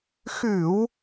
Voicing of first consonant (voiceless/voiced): voiceless